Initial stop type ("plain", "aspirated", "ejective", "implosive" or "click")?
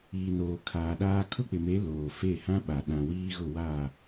aspirated